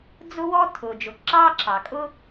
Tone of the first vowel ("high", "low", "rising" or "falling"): high